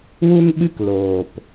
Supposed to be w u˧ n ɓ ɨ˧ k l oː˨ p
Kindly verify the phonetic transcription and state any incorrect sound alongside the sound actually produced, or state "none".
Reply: none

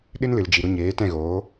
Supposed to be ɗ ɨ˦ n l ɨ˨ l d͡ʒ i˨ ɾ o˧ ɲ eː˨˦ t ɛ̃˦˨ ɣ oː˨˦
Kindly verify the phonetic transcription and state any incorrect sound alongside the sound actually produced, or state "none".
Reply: none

